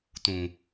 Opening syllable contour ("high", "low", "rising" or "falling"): low